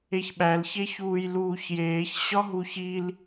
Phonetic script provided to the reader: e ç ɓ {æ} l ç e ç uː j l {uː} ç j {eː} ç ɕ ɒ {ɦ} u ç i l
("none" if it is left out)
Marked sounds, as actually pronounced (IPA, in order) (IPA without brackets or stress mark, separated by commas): æ, uː, eː, ɦ